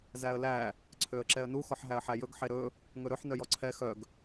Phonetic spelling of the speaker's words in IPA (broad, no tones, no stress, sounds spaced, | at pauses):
z æ ə̯ l æ | ǀʰ ø ə̯ ǁ ɛ ə̯ n u x ɔ ħ ɦ æ ə̯ ħ æ j ɵ ɡ ħ e ɾ ɵ | ŋ ɵ ɾ ɵ ħ n œ j ɔ ǀʰ ɛ x œ ɡ